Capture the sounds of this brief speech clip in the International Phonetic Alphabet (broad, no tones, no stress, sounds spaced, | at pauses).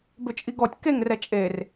b ʏ t͡ʃʼ i ɡ ɔ tʲ k e ŋ r ɛ t͡ʃʼ e r